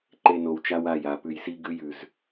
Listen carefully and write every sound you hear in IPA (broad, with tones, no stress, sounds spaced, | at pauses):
ǃ e˨ n o˨ w t͡ʃ a˦ w a˦˨ j a˨ p ʉ˨ j s i˦ ɡ ʉ˦ j ʉ˨ z